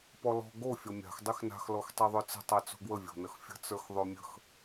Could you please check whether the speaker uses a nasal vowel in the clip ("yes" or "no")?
no